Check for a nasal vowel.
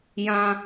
present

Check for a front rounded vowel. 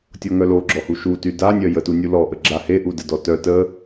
present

